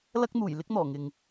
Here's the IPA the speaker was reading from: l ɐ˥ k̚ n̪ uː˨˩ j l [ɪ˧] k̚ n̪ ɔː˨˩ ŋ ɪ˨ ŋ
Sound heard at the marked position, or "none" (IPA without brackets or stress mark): ɪ˥